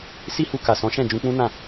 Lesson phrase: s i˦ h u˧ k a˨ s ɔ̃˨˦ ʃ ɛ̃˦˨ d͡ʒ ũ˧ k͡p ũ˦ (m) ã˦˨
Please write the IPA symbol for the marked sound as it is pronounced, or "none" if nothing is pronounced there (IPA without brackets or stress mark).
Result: n